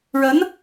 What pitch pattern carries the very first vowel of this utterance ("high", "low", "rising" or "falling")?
rising